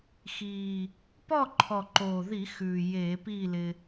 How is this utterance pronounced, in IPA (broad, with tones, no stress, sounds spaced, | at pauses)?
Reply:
x iː˨˩ | p ɔ˥˨ ǃʰ ɔ˨˩ ǃ oː˨˩ ð i˧˩˧ x ʉː˨˩ j eː˧˩˧ p iː˥˨ l ɪ˧